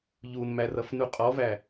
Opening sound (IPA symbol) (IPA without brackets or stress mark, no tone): ʎ